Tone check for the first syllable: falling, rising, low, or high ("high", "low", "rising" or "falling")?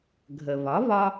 low